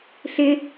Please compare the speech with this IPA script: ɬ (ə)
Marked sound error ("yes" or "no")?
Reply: yes